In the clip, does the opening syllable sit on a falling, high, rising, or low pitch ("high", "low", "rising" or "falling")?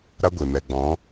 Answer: high